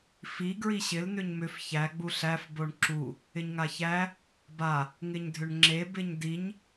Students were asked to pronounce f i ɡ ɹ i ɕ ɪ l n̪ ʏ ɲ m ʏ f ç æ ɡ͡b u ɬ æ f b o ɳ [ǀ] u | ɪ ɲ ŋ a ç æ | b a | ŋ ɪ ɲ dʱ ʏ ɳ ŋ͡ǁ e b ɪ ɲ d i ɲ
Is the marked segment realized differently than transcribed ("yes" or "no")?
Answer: yes